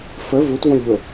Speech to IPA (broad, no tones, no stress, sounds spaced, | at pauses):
f ə v u t v õ lʲ ʎ o